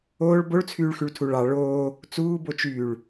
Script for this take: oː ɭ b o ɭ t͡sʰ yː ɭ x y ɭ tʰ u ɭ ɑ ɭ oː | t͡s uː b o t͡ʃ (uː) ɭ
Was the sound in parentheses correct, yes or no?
no